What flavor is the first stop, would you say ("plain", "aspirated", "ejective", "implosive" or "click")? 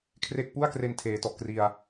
aspirated